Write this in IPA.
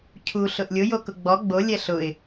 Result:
cʰu ɬʊʔlʲʊ jokʊɡ͡bɔ ɡ͡bo lʲɛɬʊɪ̯

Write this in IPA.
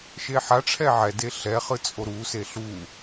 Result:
ʃeħaʈ͡ʂʰɛ ʕɛde ɬɛχɯ t͡sʼoɾuse ɬu

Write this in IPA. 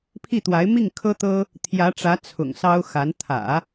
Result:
pʰi˥˩t̪wa˧˥ɪ̯ mi˥˩ŋ kʰɤ˥t̪ɤ˥ | t̪ʰjä˧˥ʈ͡ʂä˧˥ t͡sʰʊ̰˨˩ŋsɑ˥ʊ̯xa˧˥n t̪ʰä̰˨˩˦

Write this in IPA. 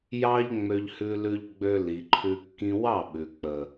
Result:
jɑ˦ʎ ŋ͡mø˧ʎhʉ˧lʉ˧ʎɡ͡bø˧ li˨ǃʰʉ˧ kːĩ˧wɑ˦˨ɓʉ˨ k͡pə˨

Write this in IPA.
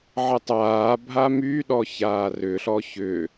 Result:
ʕətˤaː bʱamyɗɔ çaːrʏɬɔ çʏ

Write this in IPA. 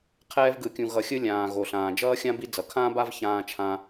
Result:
qʰɛː˦vɡɯ˨kʲũ˨ ɣʌ˨xʲɯ˦lʲãː˩ ɣo˩ɬãː˩ d͡ʒʌː˥xʲã˥bi˦ d͡zʌ˩kʰãː˦ba˦v çãː˦t͡ʃʰã˦

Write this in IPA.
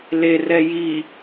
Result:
lerɛ ji

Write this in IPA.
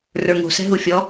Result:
rə˞ŋo̤sɛ̤ɦu fʲɔ

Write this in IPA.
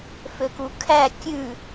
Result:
føkukʰæ kʲʉ

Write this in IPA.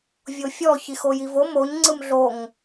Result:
vʲofʲɔ çixojivo moɲ ŋ͡ǀɯmɮoŋ

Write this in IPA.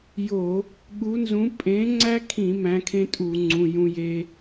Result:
jo˧˩˧ | ɠu˨˥nzũ˨˥ pʼẽ˨˥ŋ͡ǀæ˦kʰĩ˧˩˧ mæ̃˨˥kʰẽ˦tʼu˧˩˧ŋ͡ǀũ˩˧˩ jũ˦je˦

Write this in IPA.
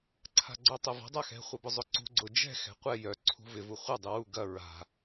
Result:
ǀʰa̤ɡ͡ǀœtˤɛva̤ dˤaxɛ̤ χʷɐbʊzˤʊǀṳ ɡ͡ǀʊ d͡ʒɛ̤ xɛ̤qʷɛ jœ ǀʰṳvɪ vuχʷɐ dˤuwu ɡɐ ɹa̤

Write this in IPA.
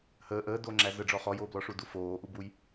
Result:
həː ʔəːdoːŋ͡ǁæ zəɖ͡ʐɔ χɔjoːblɔʂu dufoːʔubuj

